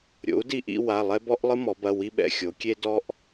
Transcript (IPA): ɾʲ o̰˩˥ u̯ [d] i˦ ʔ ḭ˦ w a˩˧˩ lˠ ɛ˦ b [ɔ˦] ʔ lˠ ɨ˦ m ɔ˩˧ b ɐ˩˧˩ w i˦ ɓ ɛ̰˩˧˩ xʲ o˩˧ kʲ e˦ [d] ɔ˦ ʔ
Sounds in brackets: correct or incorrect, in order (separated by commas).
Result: correct, correct, correct